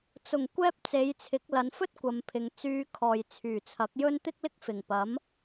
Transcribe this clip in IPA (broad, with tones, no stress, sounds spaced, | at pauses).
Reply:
t͡s ʊ˨˩ ŋ kʷ ɛː˥ p̚ t͡s e˨˧ j t͡sʰ ɪ˨˥ k̚ l ɐ˨˧ n f ɵ˥ t̚ kʷ ɐ˨˧ m pʰ ɪ˨ ŋ t͡s yː˧ kʰ ɔː˨ j t͡sʰ yː˨˩ t͡sʰ ɐ˨˥ k̚ j ɵ˥ n t̪ ɪ˥ k̚ l ɪ˥ k̚ f ɪ˨˩ ŋ p ɐ˨˥ m